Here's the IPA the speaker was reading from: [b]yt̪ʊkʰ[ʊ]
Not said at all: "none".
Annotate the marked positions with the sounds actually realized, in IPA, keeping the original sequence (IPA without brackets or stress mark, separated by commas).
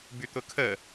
b, ə